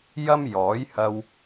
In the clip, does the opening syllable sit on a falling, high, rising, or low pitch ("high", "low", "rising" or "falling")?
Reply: high